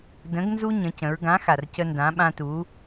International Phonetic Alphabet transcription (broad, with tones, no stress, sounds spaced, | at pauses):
d ə̃˨˥ ɡ n z u˦ ɲ ə̃˩˧ c ə̃˩˧ ɹ ɡ ã˨˥ x a˩ r c ə˦ n d ã˨˥ ɓ ã˦ t u˨˥